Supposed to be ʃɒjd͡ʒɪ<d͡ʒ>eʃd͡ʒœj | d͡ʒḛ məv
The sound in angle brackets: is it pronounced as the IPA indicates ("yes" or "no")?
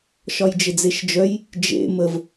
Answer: no